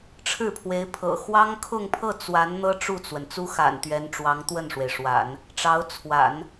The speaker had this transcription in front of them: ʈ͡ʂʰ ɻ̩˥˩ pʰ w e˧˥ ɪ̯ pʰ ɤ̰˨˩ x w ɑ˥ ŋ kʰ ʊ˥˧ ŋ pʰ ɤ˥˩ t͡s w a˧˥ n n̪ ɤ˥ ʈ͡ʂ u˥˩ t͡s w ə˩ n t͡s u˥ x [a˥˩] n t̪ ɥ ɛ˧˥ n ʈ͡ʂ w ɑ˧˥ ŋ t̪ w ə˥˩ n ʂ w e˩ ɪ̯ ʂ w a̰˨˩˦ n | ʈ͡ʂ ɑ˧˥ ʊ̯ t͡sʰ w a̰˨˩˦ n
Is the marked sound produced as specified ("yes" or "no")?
no